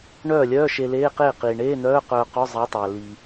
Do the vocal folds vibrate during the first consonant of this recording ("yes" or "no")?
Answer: yes